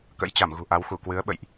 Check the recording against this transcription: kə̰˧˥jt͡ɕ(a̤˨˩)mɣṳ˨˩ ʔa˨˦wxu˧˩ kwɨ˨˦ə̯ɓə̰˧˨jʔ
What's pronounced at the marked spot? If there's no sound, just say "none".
a˧˩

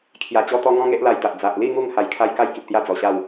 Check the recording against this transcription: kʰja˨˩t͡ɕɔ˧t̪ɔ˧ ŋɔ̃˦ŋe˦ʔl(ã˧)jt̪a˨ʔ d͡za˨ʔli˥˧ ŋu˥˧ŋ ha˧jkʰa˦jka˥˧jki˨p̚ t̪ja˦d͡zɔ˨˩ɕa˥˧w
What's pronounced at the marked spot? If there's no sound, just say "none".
a˧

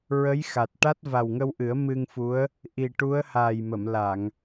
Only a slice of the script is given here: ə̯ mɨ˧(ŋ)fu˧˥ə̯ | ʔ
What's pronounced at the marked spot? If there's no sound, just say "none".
ŋ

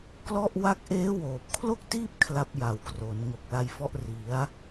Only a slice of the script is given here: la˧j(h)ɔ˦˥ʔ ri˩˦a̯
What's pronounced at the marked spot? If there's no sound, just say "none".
f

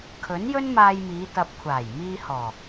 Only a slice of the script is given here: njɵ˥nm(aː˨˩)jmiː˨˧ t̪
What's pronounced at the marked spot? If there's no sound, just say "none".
aː˧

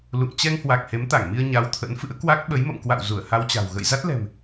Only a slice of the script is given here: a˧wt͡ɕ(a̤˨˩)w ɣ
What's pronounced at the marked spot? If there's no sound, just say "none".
a̤˨˩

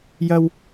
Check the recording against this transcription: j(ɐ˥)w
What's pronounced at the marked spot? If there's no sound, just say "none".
ɐ˥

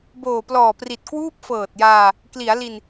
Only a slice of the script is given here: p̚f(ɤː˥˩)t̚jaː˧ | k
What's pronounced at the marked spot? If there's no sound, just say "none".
ɤː˨˩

